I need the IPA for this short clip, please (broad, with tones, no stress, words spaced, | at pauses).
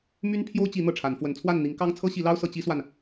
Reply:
my˦n pʰjo˦ʊ̯t͡ɕi˨˦ n̪ɤ˥˨ʈ͡ʂʰa˨˦n fwə˨˦nt͡sʰwa˥˨n n̪i˨˦ŋ kɑ˦ŋ t͡sʰɤ˦ɕi˨˦lɑ˦ʊ̯ sɤ˨˦ t͡ɕi˦swa˨n